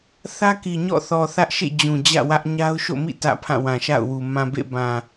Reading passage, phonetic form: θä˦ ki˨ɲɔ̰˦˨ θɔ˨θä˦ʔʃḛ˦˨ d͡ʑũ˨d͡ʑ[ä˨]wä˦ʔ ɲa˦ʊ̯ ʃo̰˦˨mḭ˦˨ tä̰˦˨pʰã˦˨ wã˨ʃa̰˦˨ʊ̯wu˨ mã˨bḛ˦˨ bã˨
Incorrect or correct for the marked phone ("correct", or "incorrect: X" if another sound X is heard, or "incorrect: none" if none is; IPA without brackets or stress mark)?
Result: incorrect: ä̰˦˨